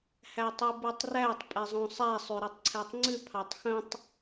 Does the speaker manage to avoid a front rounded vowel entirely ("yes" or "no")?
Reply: no